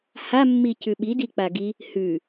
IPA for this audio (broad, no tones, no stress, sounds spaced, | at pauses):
h a mː i c ʉ ɓ i d i k͡p a ɡ i | h ʉ